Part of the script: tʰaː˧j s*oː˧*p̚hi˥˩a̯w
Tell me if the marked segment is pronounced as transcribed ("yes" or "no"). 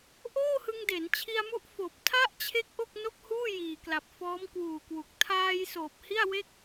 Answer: no